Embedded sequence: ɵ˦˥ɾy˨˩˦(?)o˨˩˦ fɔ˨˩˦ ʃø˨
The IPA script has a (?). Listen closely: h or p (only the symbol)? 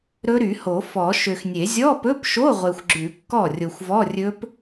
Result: h